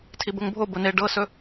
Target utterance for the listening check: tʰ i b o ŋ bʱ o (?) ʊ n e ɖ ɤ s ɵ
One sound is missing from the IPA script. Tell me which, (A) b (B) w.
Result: A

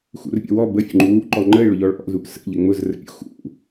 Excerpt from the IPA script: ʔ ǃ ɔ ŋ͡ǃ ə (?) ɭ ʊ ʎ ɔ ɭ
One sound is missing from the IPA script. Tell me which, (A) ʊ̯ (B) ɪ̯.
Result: B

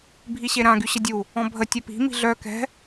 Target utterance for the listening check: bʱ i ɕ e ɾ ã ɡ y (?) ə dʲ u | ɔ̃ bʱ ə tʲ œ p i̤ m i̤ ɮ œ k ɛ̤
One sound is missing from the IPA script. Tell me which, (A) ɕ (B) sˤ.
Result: A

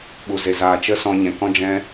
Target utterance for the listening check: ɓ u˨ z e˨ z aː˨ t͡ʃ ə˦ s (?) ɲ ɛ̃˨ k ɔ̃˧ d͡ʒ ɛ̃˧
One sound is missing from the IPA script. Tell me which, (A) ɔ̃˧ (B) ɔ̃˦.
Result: A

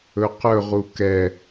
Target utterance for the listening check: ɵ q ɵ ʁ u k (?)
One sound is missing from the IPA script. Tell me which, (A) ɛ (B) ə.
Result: A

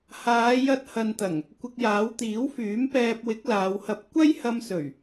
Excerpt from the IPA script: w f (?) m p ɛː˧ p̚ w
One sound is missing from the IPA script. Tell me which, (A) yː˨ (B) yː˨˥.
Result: B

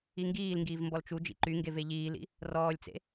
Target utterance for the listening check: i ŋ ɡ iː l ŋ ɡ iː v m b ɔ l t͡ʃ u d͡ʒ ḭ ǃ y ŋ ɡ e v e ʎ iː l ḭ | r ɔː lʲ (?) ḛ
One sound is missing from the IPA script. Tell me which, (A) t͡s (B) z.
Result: A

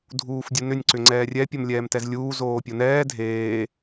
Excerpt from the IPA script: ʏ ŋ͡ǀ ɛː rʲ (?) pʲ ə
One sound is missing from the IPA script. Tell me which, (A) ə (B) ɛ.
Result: B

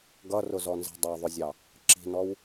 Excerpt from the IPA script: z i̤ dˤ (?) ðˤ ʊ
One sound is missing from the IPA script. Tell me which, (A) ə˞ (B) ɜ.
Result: B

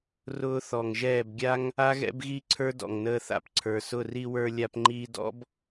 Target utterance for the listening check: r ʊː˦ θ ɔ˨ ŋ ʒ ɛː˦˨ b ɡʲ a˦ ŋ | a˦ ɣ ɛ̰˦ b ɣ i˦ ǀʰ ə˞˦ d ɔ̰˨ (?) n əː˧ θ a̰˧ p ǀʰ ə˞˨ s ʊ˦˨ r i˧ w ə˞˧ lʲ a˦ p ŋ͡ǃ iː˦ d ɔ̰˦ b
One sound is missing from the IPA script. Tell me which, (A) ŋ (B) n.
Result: A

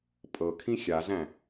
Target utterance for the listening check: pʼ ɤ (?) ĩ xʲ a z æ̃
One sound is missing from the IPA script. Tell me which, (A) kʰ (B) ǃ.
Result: A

